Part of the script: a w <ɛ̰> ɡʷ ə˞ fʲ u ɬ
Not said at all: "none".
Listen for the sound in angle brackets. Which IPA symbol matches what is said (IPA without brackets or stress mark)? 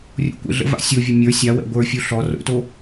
ɛ̰